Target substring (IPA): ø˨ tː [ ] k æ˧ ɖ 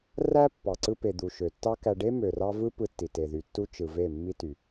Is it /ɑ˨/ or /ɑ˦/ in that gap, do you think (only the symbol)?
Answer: ɑ˦